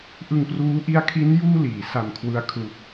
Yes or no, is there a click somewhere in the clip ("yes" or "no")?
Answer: no